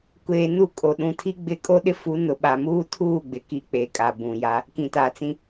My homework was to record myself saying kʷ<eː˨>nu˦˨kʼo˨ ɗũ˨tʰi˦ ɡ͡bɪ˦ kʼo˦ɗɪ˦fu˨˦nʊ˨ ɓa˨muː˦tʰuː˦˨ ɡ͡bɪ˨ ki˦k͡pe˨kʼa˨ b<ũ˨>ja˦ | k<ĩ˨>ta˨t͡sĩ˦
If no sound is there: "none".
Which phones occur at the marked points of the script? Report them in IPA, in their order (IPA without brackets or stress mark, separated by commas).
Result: eː˨, ũ˨, ĩ˨